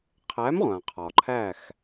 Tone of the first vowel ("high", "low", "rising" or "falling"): rising